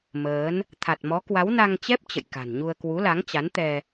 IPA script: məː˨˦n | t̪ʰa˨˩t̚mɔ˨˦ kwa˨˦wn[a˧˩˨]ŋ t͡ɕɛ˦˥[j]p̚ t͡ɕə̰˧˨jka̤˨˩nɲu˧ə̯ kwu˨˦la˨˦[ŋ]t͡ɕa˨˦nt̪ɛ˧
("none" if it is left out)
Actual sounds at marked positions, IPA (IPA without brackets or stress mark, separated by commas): a˧, none, ŋ